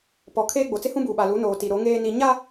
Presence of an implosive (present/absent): present